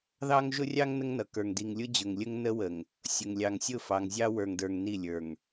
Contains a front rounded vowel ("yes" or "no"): no